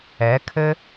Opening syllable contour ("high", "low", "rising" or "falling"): rising